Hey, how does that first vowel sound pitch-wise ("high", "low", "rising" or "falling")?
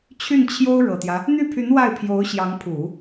falling